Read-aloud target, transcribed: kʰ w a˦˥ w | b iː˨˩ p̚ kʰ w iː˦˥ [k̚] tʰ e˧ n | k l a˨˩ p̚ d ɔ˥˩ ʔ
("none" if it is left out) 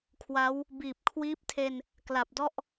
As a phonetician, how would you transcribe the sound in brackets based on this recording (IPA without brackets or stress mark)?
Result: p̚